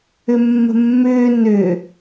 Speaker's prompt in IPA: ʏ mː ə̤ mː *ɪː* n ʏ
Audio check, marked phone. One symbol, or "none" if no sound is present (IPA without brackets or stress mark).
ʏː